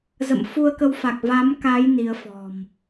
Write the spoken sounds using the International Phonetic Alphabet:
z ə̰˧˨ m f u˧ ə̯ k ə˧ w f a˨˩ k̚ v a˨˦ m k a˨˦ j n i˨˦ ə̯ f ɔ̤˨˩ m

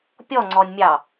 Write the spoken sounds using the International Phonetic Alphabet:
pʲ ɔ ŋ͡ǀ ɔ nʲ mʲ ɑ

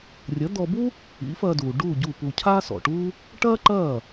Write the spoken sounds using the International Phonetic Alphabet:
rʲ ɐ˩˥ d̪ ɔ˧ b u˥ | ḭ˩˥ f ɐː˧ d uː˩ ɖ uː˥˩ ɟ u˥˩ p u˧ cʰ aː˥ s ɔ̰˩ ʈ uː˥ | ʈ ɐː˥ ǃ ɐː˥˩

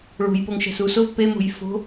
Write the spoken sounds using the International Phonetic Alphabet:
ɭ o̤ j p o ŋ ʃ æ̤ s u s o v p e m o̤ j f o̤

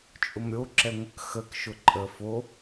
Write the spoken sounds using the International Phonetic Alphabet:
t͡ʃʼ ʊ m ɾʲ o ǁ ɛ ŋʷ ə k x ə k ʃ ʊ ǃʼ ə f o

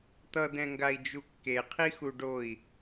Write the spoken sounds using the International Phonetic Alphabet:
t̪ ʌ d̪ ɛ̃ ŋ ɡ a i̯ d͡ʒ u kː e qʰ i x u ɖ o i̯

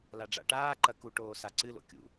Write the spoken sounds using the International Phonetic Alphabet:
l a ɖ͡ʐ a̰ ʈ aː ǃ ɐ k u ʈ oː s a ǀ ɨ l o̰ kʲ ṵ

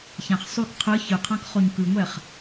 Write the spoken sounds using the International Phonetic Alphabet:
ç ã χ sˤ ʉ k qʰ ɯ ç ɯ qʰ ã k χ o ɲ k ɯ ŋʷ ɛ χ

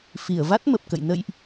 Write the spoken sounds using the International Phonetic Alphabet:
f i˧˩ ə̯ v a˦˥ t̚ m ə˨˩ p̚ k ə̰˧˨ j n ə̰˧˨ j ʔ

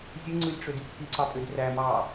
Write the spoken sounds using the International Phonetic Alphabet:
zʲ ɯ ŋ͡ǀ ɯ lʲ ʈ͡ʂ ø d y kʰ i ǀ ɑ pʼ ø d r æ m ɑ

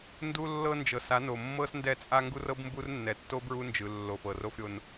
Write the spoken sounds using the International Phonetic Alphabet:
n d u˦ lː ɤ˦ n d͡ʒ ɤ˨ s a˨˦ n o˨ mː ɤ˦ s n d ɛ˦˨ t͡sʼ a˦ ŋ ɡ u˦ r ɤ˦ b m b u˦ r nː ɛ˨˦ tː o˦ b ɹ u˦ n d͡ʒ ɯ˨ lː o˨ f ɤ˨ r o˦ f ɾʲ o˦ n

